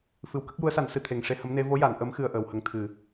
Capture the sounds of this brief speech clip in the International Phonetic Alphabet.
f ɨ˨˩ w k ə˦˥ k̚ j u˧˥ ə̯ s a˨˩˦ n s ɨ˨˩ t̪ʰ e˨˩ ŋ ʂ e˧ h ə˧˥ m n e˧˥ v o˧˥ j a˨˩˨ n ʔ ə˧˥ m x ɨ˧ ə̯ ʔ əː˨˩ w h ə˧ ŋ t̪ʰ ɨ˨˩˨

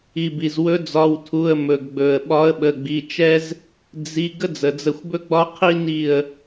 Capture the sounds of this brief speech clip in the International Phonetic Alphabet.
i˩ b i˩ z w ɵ˨˦ d͡z ɒ˩˧˩ w tʰ u˩˧˩ ə̯ m ɵ˩ ɡ ɡ͡b ɵ˩ ə̯ ɓ ɒ˨˦ ə̯ ɓ ə˩˧˩ ɡ͡b i˩˧˩ t͡ʃ ɛ˦ z | d͡z i˩˧˩ ɡ ə˦ d͡z ə˩ d͡z ə˧˩ xʷ b ɵ˦ ɡ͡b ɒ˦ qʰ i˦ n i˧˩ ə̯

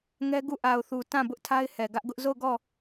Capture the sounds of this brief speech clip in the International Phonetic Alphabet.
ŋ ɛ˦ ɡ u˦˨ ʔ a˨ ʊ̯ θ u˨ t ã˦˨ b ʊ˦ ʔ tʰ a˦ ɪ̯ h ɛ˨ ɡ ä˦ ʔ ɡ ʊ˦ ʔ z o˦˨ ʊ̯ ɡ ɔ˦˨

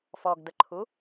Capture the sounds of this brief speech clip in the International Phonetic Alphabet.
f ɔ ɡ d ə ǃʰ u

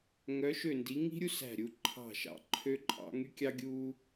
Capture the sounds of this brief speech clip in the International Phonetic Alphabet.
ŋ œ˨˦ ʃ ø˧˩ n d i˨˦ ŋ i̤˦ ɾʲ u˦ s æ̤˧˩ ɾʲ u˨˦ ǃʰ ɑ̤˧˩ ʃ ɑ̰˨˦ ǃʰ ø˦ ǃʼ ɑ̰˦ ŋ y˦ kʲ ɑ˦ ɡʲ u˦

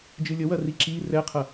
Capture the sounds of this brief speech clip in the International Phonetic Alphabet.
d͡ʒ ɨ lʲ ə w ɐ r i ǁ i r ɛ qʰ ɐ

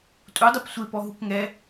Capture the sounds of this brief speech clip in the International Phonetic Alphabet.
tʼ u dˤ e p sʷ e p ɔ ɦ u k ŋ ɛ

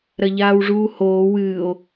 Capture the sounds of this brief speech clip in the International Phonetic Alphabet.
ɾ ɐ ʎ aː w ʐ uː h oː w ɨː o̯

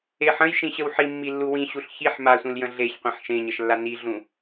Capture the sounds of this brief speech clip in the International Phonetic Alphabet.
e ħ ə̃ j ʃ ĩ ɕ ə w ħ i mː i lː u w ĩ ɕ u ɬ ç i ħ m a sʷ ĩ l j ə̃ ɮ e ç qʷ ĩ ħ ʃ ẽ ɲ ə ʃ lː a n i ɮ ũ

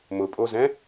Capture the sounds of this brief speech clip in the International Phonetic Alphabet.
m ʊ pʼ o z ɛ̃

